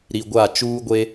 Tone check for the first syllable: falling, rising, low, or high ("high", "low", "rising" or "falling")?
low